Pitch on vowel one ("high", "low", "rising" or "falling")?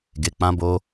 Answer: low